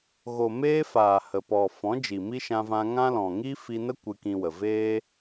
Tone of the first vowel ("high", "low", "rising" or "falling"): low